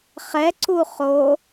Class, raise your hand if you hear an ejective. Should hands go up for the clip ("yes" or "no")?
no